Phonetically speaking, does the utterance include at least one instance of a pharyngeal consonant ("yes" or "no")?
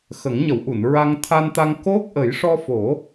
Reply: no